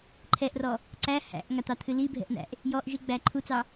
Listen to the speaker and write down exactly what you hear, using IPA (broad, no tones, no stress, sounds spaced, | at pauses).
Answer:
ǃʰ ɛ ʔ r ɔ | ǀ æ h æ̰ ʔ ŋ a t̪ ɑ t̪ʰ ɨ l i bʱ ɛ̰ ʔ n̪ æ̰ ʔ | j ɔ ʔ ʒ ɨ ɡ͡b æ ǃʰ u t͡s ɑ